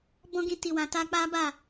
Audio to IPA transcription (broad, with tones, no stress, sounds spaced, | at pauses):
b ɔ̃˦ ɡ ĩ˧ t i˨ w ã˨ t a˧ k͡p a˦ b a˦˨